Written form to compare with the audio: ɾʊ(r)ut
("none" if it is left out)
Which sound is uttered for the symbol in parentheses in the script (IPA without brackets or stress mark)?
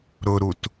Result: ɾ